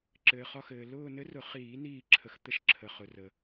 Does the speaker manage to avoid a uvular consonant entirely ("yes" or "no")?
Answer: no